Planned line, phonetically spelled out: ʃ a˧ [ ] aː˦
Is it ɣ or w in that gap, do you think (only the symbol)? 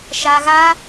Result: ɣ